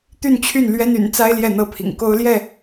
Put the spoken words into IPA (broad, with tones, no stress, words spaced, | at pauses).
t̪y˥˨nt͡ɕʰy˥˨nlɥɛ˦n y̰˨˩n t͡sa˦ɪ̯ ljɛ˥˨n̪ɤ˥˨pʰḭ˨˩ŋ ko˦ʊ̯ljɛ˥˨